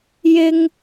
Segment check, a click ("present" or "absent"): absent